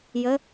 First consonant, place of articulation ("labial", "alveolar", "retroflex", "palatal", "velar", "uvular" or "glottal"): palatal